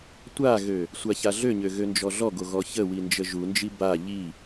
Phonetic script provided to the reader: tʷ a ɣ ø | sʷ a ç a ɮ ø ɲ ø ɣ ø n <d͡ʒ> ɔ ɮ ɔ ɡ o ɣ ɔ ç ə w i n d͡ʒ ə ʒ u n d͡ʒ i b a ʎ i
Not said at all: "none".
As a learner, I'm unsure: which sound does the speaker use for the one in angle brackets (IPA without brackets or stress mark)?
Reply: d͡ʒ